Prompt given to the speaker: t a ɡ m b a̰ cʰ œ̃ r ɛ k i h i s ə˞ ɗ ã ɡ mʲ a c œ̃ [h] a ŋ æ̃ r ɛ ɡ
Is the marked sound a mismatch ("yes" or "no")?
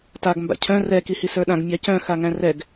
yes